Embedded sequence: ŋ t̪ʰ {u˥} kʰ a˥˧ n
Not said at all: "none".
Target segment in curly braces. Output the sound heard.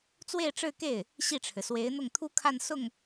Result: u˥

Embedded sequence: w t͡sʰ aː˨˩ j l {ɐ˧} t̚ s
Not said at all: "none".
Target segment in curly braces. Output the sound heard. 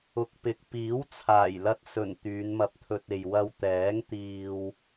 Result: ɐ˧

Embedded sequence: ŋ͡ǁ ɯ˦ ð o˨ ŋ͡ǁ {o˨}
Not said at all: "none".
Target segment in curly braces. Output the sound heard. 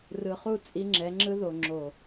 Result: o˨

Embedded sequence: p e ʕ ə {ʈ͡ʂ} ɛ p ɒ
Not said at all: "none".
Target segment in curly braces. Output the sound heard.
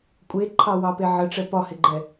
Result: ʈ͡ʂ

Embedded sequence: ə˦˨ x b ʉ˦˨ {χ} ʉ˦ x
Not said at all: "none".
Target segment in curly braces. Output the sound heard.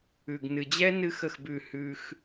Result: h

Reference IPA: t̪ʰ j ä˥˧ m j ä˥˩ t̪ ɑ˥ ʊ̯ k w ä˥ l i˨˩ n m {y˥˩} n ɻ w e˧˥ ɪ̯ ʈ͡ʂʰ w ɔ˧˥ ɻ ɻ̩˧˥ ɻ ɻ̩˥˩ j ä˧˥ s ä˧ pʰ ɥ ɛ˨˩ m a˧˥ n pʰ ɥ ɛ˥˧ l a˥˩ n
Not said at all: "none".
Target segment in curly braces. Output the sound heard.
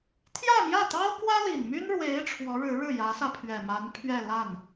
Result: y˥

